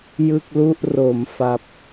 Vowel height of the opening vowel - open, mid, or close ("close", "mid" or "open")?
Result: close